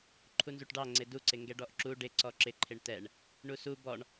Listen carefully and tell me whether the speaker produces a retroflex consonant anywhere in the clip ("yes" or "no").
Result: yes